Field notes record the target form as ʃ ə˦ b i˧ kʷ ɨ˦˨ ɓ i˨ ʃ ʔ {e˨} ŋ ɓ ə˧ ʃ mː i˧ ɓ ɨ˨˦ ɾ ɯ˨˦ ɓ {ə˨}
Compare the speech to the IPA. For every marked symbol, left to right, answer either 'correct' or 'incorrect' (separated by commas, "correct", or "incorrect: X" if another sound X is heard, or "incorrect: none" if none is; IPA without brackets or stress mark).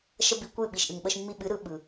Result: incorrect: ɨ˨, incorrect: ɯ˨